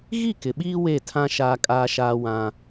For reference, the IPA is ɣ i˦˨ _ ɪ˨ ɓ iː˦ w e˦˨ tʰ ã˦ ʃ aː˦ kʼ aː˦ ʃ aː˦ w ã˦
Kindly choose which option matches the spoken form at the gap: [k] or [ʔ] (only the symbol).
k